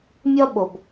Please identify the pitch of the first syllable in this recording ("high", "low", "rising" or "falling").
high